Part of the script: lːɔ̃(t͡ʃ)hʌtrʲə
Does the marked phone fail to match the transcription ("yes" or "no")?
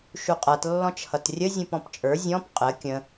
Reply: no